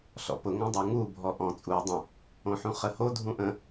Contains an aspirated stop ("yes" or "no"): no